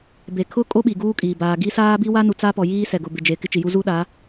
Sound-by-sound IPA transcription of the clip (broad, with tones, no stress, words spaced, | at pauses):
be˨kʰʊ˦ kʼo˦ɓi˨ɡuː˦kʼiː˨ baː˨ɡi˦saː˦ bi˦wa˦nu˨ t͡sa˦pɔ˨jiː˦ sɛ˨ɡʊ˨bɪ˨d͡ʒe˨ kɪ˦t͡ʃi˨ju˦ zu˦ɗa˨˦